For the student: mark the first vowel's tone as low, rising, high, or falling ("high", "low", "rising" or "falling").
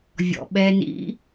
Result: low